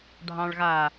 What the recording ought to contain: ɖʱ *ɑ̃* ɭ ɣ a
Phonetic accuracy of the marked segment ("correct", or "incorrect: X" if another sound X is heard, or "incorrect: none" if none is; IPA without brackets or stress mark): correct